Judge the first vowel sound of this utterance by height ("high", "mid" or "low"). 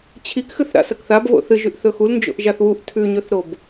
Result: high